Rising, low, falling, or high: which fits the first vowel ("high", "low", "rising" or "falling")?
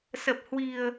low